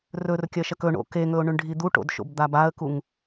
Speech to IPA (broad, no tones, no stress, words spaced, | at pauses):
rɵrkʲɐʃɐk ɵɳo̰ keŋɵʊ̯ɳʉɳɖʱi d̪uʈo̰dʃo̰b d̪abaə̯kuŋ